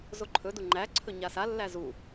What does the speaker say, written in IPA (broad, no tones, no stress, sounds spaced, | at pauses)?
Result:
z o ǃʰ ɵ d u ŋ͡ǃ æ ǀʰ ɵ ɲ a s a lː æ z u